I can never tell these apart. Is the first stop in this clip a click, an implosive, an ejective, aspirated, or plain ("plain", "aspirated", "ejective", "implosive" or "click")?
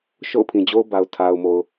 aspirated